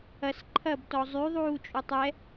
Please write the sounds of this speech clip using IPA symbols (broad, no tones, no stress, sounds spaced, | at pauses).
ɐ s ǃʰ ɐ b t ɔ zˤ y ðˤ uː t͡ʃʼ u tˤ ɛ